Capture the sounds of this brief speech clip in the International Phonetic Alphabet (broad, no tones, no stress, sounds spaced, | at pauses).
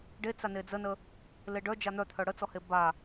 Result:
ɖ e t͡s a n e d͡z ə n ə | l e ɖ œ d͡ʒ a n̪ œ t̪ʰ œ ɽ ə t͡s ɔ h e b a